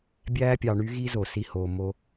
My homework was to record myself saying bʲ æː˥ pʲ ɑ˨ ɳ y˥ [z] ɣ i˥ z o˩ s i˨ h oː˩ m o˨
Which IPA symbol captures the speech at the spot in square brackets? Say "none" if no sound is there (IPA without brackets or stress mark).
none